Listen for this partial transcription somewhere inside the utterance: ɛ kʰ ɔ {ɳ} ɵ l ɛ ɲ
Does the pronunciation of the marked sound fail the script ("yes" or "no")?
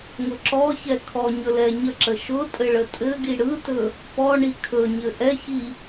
yes